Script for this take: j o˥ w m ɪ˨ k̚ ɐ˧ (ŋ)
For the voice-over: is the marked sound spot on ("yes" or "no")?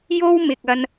no